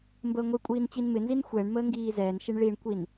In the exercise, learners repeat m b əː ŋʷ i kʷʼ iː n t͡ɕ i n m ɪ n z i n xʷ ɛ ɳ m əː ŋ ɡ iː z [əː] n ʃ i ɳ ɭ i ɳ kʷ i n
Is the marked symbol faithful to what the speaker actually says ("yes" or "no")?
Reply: no